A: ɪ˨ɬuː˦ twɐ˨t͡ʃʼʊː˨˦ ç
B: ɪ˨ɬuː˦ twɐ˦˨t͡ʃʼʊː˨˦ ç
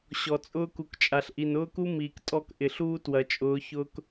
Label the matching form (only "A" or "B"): A